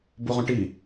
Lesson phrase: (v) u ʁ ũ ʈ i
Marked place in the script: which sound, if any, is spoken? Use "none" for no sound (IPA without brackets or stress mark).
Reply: b